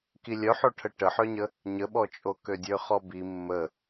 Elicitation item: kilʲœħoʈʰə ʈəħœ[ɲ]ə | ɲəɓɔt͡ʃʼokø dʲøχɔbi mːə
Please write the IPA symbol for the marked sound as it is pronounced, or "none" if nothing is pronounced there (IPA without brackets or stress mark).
ɲ